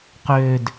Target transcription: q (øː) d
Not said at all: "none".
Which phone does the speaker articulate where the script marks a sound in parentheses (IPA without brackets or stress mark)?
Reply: øː